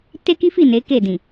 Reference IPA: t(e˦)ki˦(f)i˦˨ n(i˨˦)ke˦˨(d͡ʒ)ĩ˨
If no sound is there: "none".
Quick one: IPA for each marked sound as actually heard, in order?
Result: e˦, f, e˨˦, d

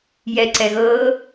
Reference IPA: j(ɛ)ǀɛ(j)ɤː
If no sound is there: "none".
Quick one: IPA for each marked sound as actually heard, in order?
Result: ɛ, ɣ

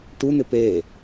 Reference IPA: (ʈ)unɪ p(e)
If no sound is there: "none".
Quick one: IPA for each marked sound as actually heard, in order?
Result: ʈ, e

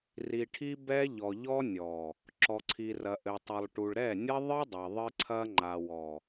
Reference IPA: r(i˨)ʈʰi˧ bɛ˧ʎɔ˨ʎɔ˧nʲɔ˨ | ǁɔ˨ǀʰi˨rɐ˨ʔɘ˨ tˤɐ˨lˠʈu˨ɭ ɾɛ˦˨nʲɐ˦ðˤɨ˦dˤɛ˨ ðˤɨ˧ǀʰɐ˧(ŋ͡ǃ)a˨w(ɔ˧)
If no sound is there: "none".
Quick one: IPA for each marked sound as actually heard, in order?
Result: i˨, ŋ͡ǃ, ɔ˨

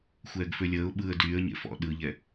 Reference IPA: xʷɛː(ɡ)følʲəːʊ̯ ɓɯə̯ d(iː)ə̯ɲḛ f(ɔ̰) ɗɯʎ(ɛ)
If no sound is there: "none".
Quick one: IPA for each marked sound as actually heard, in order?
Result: ɡ, yː, ɔ̰, ɛ

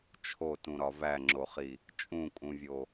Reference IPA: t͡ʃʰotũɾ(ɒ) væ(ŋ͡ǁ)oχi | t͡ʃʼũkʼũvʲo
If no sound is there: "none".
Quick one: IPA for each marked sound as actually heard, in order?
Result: ɒ, ŋ͡ǁ

